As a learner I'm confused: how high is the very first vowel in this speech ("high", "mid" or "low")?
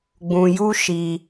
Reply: high